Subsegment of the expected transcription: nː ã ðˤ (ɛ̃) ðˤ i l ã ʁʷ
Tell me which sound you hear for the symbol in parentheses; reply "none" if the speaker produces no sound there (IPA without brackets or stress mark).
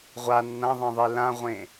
ɛ̃